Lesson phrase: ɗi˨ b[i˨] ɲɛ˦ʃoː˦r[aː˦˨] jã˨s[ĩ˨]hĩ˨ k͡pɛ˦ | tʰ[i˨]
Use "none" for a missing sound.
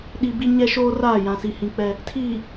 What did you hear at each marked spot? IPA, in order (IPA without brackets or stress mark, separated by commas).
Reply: i˦, aː˦˨, i˨, iː˨